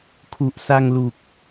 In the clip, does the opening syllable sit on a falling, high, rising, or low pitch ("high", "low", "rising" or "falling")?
low